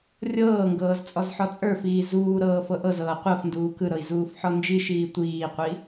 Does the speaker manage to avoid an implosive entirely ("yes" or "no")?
yes